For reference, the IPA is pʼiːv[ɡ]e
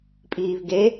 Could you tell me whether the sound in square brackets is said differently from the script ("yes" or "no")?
no